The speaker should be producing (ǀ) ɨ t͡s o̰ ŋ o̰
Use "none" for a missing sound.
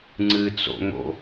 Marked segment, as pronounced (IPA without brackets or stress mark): ŋ͡ǀ